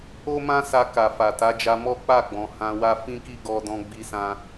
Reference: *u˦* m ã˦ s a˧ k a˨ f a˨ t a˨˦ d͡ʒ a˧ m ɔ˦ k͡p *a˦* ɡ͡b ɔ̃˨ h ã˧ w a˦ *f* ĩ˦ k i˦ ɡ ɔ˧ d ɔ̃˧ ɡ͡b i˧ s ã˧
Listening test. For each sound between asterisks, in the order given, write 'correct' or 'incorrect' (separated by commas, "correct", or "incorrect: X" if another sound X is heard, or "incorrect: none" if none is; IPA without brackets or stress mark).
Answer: incorrect: o˦, incorrect: a˦˨, correct